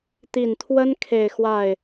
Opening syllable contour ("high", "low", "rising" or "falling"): low